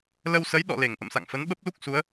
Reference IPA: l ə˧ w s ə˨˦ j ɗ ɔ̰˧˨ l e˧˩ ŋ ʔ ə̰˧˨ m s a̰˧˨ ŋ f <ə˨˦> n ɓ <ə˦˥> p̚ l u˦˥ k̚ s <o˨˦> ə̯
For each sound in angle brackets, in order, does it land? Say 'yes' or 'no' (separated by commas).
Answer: yes, yes, no